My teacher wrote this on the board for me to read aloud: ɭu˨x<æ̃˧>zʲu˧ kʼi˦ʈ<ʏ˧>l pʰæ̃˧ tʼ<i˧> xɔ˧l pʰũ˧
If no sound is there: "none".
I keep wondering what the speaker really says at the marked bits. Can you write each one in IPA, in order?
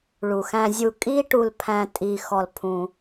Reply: æ̃˧, u˧, i˧

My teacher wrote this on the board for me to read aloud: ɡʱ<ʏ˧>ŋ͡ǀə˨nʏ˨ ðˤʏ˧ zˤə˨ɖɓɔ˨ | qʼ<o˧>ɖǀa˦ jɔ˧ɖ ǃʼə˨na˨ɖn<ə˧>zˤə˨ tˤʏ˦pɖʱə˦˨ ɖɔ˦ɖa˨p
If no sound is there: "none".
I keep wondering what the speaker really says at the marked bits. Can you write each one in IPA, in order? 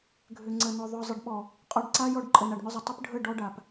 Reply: ʏ˨, ɔ˧, ʏ˧

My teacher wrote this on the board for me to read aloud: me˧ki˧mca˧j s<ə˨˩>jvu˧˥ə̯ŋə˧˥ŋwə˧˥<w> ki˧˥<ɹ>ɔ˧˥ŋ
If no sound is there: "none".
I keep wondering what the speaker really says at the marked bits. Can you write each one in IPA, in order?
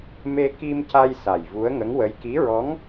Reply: a˨˩, j, ɹ

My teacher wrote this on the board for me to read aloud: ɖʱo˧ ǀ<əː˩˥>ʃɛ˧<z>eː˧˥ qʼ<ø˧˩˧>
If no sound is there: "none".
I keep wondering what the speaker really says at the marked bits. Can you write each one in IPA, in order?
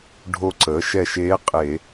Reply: əː˩˥, ʃ, e˧˩˧

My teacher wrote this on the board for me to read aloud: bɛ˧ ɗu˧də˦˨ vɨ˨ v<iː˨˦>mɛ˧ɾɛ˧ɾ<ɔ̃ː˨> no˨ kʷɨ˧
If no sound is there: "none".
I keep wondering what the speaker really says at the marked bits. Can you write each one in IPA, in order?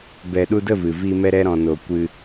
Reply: iː˧, ɔ̃˨

